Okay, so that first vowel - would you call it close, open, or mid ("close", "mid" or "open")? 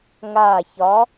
open